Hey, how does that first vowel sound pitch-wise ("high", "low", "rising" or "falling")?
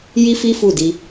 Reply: high